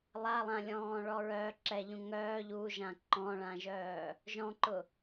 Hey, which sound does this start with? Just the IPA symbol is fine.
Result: lˠ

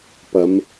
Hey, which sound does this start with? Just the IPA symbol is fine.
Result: p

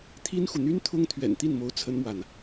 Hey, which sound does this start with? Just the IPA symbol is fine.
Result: t̪ʰ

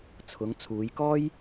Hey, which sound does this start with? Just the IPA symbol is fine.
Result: t͡sʰ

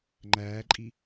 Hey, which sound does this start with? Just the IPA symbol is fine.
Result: ŋ͡ǃ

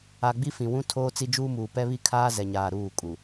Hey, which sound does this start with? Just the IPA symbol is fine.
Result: a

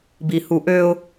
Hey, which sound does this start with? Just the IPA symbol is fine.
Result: b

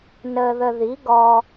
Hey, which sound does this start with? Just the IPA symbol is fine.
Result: n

